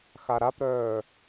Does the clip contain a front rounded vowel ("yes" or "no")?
yes